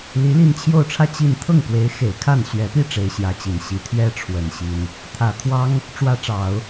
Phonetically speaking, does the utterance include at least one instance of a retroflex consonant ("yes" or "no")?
yes